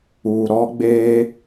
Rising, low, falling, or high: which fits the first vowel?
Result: low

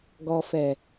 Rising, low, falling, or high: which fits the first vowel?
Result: low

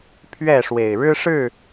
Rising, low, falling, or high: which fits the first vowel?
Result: falling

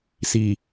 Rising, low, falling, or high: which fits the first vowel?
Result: low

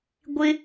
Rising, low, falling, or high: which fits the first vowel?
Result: high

